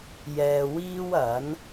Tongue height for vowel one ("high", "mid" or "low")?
mid